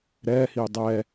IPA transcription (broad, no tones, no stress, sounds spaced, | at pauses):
ɾ ɛː h iː dˤ ɛː